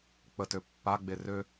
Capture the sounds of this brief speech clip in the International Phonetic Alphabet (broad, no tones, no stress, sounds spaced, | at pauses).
k͡p ə t ø pː a ɡ͡b e r ø